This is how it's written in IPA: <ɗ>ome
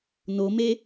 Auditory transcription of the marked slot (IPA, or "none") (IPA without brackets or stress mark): n